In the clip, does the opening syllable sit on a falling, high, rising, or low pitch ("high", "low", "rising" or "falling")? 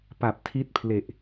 low